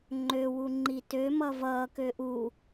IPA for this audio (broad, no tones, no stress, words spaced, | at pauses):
ŋ͡ǃøwu ŋ͡ǃitømʌ vʌːkø ʔu